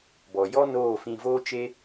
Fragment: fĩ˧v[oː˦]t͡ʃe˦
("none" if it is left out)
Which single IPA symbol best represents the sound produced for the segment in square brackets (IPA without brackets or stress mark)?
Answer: oː˦